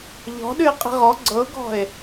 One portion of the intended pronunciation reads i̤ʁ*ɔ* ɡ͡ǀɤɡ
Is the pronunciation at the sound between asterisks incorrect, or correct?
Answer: correct